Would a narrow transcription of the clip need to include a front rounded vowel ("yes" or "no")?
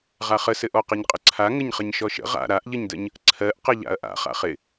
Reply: no